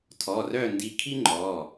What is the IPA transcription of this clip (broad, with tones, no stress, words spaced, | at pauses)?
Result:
tʰɔ˩˧˩rœ˥˨ndi˧kʰi˥ ŋ͡ǃɔ˩˧˩